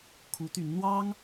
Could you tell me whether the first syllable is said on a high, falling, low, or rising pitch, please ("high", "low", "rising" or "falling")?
rising